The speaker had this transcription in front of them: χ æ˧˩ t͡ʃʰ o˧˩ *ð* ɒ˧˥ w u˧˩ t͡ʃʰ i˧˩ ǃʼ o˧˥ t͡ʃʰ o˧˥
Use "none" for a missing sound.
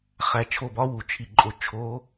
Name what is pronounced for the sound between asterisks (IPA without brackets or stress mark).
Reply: b